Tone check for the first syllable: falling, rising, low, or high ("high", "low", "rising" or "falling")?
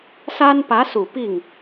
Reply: high